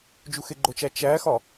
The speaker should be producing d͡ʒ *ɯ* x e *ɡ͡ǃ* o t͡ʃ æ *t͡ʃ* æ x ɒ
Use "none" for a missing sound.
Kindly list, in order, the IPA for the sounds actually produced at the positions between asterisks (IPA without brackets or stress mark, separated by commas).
u, ɡ͡ǃ, t͡ʃ